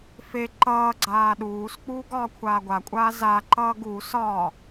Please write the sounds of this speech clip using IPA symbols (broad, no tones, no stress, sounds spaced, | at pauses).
f e ǃ ʌː ɡ͡ǀ aː ɗ uː s k͡p uː ɡ ɒː kʷʰ aː ɡʷ a kʷʼ aː z a ǃ ʌː ɡ u s ɒː